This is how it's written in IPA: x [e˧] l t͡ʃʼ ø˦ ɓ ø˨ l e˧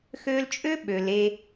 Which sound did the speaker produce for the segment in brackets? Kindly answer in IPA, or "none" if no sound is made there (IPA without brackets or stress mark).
ø˧